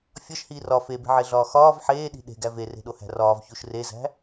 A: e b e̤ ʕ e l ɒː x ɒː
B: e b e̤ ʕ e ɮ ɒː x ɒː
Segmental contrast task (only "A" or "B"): B